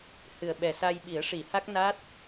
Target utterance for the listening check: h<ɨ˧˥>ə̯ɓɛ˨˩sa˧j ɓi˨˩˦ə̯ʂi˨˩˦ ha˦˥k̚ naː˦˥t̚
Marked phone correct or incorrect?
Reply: incorrect: ɨ˨˩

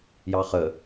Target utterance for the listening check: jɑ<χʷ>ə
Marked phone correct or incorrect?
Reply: incorrect: χ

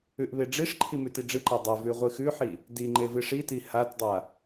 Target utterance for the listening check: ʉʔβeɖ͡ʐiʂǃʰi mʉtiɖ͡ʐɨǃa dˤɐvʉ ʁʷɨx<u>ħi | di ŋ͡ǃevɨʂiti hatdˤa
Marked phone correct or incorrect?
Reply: incorrect: ʉ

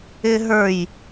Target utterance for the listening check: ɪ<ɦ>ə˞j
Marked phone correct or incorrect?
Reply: correct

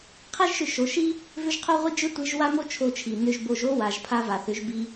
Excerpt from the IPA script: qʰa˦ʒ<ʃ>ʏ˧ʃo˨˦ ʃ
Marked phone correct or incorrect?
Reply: correct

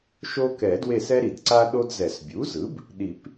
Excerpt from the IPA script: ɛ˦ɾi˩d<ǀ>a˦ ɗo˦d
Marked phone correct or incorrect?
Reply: correct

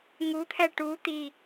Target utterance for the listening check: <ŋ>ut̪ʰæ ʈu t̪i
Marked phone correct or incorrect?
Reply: correct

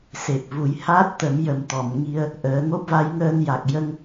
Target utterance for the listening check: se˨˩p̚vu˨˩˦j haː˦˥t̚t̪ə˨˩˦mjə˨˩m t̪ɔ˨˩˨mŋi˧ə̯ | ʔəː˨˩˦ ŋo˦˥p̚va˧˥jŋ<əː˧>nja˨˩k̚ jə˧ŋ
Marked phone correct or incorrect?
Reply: correct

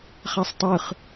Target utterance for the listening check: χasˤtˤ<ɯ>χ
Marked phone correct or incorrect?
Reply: correct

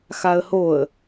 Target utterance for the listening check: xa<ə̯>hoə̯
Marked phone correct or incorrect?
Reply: correct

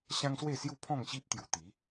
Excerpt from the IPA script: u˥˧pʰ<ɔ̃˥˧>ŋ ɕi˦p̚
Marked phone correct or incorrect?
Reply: correct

